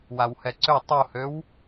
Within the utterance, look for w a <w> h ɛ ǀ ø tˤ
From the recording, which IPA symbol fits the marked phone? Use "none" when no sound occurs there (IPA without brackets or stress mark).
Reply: w